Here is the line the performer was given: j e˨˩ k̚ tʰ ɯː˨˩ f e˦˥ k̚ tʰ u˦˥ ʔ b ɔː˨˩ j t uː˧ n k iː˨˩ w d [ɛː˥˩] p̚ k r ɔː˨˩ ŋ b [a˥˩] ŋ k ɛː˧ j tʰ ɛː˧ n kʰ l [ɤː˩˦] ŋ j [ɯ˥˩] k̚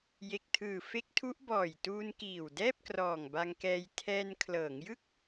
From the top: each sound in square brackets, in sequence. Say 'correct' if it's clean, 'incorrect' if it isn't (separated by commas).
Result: correct, incorrect, correct, correct